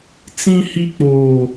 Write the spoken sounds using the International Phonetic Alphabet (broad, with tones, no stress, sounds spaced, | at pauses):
t͡s ĩ˦ h i˦ k͡p oː˦